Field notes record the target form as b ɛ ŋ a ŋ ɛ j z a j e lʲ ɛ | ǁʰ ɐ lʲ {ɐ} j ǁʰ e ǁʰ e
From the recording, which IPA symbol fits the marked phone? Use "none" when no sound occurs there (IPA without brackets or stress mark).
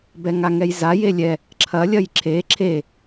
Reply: ɐ